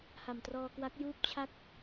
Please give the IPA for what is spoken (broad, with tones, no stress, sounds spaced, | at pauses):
h a˨˩ m t r ɔː˧ k w a˦˥ k̚ j uː˥˩ p̚ t͡ɕʰ a˥˩ k̚